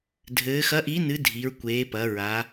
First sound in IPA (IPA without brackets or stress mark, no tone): dʱ